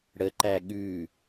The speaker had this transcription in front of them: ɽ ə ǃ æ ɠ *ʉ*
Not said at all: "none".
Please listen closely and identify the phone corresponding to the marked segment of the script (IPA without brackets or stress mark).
ʉ